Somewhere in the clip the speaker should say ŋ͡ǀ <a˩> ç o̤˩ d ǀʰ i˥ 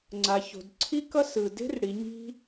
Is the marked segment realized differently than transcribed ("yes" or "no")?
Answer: no